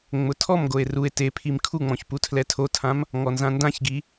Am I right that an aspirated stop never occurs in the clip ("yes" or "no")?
no